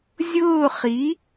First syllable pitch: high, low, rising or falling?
falling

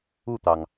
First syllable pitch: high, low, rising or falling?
falling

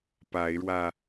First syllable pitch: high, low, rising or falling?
rising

